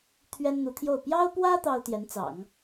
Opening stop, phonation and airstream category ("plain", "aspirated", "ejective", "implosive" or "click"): aspirated